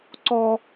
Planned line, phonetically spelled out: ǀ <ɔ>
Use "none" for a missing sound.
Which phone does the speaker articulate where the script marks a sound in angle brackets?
ɔ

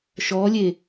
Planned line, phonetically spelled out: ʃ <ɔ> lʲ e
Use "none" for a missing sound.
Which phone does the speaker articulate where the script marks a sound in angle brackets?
ɔ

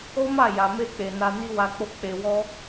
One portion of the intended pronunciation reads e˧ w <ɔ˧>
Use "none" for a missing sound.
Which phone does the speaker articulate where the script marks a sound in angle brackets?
ɔ˦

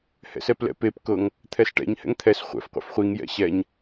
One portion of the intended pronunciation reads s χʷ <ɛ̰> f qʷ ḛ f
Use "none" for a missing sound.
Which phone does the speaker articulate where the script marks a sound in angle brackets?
ɛ̰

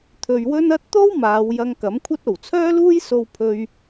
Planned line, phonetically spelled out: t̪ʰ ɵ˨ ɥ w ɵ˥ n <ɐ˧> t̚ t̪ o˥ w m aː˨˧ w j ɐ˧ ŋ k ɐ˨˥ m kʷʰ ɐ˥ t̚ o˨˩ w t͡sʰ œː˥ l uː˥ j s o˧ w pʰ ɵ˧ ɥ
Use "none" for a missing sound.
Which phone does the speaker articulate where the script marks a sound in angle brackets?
ɐ˥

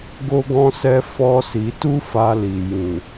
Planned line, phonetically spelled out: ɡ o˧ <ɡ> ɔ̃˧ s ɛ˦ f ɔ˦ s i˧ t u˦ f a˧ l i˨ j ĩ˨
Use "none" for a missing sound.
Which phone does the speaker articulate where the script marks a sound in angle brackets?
ɡ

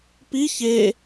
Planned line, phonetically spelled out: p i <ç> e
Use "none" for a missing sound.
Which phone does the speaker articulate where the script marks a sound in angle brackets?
ç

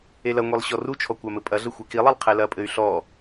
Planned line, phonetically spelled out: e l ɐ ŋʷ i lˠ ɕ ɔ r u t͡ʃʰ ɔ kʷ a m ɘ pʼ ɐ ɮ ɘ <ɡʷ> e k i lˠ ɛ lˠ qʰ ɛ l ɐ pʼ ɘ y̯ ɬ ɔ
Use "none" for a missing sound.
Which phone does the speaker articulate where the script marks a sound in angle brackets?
xʷ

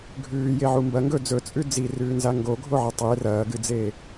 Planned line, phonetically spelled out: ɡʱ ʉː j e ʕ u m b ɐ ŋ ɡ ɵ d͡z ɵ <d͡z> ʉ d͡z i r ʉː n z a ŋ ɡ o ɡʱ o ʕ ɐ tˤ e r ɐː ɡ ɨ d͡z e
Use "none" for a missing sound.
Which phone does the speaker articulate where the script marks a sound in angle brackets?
t͡sʼ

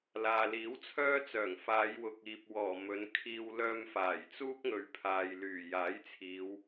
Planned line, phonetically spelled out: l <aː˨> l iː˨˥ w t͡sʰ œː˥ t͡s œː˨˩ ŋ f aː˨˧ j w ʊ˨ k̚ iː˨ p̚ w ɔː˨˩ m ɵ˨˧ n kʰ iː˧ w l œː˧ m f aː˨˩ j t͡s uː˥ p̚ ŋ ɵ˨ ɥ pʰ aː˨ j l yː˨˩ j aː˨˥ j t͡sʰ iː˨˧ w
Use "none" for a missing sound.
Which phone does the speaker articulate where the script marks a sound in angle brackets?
aː˨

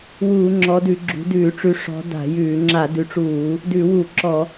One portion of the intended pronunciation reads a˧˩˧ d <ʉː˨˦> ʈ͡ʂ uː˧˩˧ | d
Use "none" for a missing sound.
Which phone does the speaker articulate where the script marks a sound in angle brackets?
ʉ˨˦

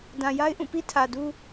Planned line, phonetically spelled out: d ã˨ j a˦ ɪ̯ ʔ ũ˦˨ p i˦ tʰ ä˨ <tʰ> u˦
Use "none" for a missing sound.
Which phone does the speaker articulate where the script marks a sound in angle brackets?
d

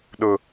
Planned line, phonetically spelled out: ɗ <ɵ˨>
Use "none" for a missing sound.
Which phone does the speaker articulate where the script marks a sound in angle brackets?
ʊ˨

